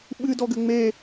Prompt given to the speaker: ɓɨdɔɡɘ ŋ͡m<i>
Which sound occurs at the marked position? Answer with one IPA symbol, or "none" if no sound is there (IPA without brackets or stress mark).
e